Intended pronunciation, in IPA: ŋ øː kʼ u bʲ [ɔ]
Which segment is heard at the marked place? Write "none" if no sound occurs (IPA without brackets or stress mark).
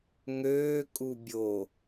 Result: o